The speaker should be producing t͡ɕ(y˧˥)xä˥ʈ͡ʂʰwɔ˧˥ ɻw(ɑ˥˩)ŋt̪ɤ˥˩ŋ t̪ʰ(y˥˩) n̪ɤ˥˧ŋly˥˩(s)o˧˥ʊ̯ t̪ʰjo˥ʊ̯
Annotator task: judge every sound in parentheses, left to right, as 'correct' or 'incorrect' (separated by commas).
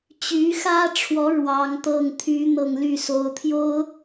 correct, incorrect, incorrect, correct